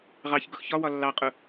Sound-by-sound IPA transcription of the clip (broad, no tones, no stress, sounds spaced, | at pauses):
ʁ ɑ ç ɡ ʊ x ç ɒ w ɒ lː ɑ qʼ ʊ